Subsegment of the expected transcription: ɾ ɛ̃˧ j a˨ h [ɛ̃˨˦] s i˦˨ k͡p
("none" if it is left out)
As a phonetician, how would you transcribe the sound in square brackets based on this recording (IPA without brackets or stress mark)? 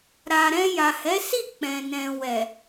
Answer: ɛ˨˦